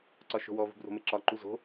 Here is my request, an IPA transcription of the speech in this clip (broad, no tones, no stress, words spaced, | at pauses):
ǀɒʃo̤wɔ vṳbro̤meǁɒ ǃuzo̤